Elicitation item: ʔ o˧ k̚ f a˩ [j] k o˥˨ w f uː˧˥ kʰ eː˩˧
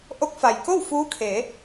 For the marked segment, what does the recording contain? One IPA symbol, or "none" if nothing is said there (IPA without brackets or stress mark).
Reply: j